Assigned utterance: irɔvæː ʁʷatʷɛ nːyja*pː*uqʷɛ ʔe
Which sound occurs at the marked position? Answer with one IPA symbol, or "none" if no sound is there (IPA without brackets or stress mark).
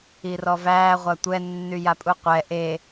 pʼ